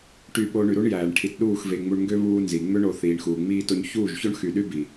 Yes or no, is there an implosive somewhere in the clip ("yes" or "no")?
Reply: yes